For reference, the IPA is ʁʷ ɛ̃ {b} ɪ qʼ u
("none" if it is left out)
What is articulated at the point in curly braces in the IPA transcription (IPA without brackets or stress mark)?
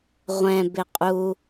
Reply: b